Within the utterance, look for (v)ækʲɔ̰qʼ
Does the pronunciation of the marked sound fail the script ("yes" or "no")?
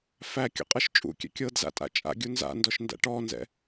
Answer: yes